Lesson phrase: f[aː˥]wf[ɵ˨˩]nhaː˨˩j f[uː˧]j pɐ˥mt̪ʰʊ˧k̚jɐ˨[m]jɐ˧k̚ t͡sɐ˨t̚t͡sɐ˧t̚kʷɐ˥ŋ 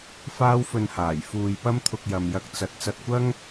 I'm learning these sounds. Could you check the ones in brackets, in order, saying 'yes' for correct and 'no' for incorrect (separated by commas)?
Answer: yes, no, yes, yes